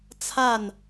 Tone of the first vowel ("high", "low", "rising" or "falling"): falling